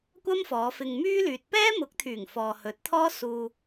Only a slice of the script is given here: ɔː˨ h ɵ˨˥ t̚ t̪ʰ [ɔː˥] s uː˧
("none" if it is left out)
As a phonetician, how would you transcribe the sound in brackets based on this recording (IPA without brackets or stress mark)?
ɔː˥